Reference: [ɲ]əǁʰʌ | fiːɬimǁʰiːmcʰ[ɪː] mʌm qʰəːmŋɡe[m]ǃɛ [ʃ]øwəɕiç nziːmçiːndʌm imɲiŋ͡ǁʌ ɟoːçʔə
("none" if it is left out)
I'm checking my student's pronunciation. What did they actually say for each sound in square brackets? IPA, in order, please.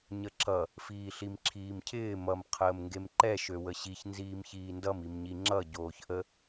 ɲ, ɪː, m, ʃ

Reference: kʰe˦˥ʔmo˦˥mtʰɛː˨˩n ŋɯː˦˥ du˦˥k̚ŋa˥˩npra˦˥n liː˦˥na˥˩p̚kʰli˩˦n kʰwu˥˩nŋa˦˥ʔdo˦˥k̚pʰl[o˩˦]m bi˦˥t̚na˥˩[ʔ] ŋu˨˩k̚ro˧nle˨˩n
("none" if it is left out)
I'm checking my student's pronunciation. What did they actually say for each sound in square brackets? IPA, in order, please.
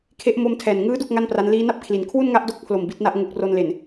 o˨˩, ʔ

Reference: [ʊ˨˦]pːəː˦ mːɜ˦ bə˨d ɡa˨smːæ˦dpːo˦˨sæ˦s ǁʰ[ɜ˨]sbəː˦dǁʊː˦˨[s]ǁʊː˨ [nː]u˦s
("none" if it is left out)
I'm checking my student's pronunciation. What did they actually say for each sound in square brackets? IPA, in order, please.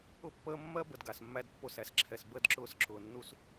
ʊ˦, ɛ˨, s, nː

